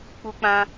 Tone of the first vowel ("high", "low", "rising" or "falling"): high